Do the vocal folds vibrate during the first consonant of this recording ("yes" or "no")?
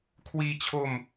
no